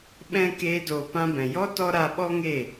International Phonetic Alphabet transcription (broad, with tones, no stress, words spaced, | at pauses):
ɓɛ̃˦ keː˦doː˧ pã˧bɛ̃˨jɔ˦ tɔ˦ ɾa˧ɓɔ˦ŋe˦˨